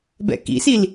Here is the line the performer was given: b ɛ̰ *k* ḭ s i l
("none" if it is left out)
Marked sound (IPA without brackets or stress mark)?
k